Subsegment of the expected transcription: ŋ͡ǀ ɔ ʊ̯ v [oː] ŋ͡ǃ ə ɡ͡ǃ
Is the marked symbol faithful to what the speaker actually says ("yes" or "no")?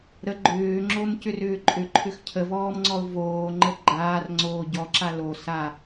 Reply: yes